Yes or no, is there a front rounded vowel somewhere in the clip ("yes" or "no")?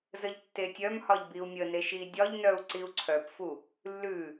yes